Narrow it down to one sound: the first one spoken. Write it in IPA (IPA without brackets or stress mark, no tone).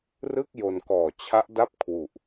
r